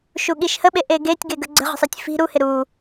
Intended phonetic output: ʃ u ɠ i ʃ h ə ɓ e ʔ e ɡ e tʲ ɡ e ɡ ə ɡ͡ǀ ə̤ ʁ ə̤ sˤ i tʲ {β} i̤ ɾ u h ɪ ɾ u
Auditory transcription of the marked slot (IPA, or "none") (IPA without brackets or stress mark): f